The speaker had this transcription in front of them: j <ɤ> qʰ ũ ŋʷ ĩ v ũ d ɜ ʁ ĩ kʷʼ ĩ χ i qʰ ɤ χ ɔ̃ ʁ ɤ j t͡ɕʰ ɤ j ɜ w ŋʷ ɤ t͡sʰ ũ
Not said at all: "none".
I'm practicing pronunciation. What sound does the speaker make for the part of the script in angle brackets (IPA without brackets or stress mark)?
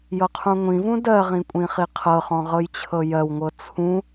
ɤ